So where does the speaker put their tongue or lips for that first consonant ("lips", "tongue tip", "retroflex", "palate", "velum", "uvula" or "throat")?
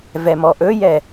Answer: lips